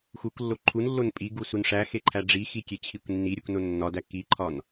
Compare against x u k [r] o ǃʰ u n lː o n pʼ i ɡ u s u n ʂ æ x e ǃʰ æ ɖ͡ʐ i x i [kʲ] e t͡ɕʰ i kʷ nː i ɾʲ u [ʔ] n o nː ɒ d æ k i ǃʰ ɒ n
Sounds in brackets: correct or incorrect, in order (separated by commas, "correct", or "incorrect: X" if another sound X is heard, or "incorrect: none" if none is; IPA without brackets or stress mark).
incorrect: lː, correct, incorrect: k